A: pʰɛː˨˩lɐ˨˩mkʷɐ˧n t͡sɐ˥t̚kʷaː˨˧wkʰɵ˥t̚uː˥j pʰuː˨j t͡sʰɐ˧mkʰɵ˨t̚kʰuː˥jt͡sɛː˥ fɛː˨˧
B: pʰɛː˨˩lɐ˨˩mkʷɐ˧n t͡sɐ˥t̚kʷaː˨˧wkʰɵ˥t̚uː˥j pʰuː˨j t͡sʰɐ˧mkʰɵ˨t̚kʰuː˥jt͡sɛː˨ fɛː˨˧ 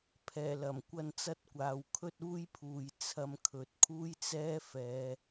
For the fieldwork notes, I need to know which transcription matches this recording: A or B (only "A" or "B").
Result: A